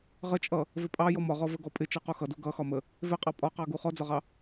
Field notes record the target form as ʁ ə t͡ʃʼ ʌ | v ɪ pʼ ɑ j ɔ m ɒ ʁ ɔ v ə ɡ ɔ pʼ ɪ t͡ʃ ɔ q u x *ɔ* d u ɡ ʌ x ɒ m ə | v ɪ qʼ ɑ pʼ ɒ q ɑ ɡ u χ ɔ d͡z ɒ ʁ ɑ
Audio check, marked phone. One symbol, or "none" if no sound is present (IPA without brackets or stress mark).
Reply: ʌ